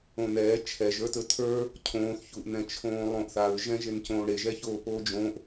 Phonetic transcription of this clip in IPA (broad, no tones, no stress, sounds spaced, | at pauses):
õ n ɛː t͡ʃʰ ɛ ʒ ə˞ t ɵ tʰ ə˞ | cʰ õː θ ç u ʔ n ɛ̃ t͡ʃʰ õː lˠ õː ʔ θ a ɹ ʒ ɛ̃ ʒ e n c õː ɽ e ʒ ɛ ç oː p oː d͡ʒ õː ʔ